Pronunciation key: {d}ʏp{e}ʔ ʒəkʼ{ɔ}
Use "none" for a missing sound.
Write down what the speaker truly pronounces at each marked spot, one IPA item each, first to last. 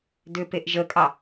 d, e, ɑ

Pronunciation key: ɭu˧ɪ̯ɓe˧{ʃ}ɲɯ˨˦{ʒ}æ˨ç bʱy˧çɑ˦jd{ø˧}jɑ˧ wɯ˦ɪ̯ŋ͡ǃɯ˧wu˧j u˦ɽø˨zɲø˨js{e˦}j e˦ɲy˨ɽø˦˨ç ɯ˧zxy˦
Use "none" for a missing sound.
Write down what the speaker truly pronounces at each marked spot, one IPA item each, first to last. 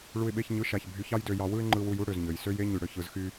ç, ʃ, ø˧, ø˦

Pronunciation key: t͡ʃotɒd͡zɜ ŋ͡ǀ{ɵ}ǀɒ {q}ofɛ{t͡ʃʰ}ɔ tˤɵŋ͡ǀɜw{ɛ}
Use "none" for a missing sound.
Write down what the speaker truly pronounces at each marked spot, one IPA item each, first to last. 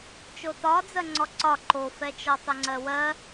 ɔ, ǃ, t͡ʃ, ɜ

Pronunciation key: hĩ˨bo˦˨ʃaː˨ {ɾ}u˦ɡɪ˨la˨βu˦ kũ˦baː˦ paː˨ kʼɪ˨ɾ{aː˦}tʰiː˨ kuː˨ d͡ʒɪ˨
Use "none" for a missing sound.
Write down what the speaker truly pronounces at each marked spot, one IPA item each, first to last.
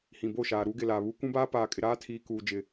ɾ, aː˦

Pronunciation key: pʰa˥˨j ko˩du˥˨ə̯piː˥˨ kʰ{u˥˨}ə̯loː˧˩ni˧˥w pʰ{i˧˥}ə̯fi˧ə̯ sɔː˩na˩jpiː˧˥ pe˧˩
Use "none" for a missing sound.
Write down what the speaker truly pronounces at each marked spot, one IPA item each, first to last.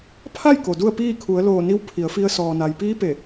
u˩˧, i˩˧

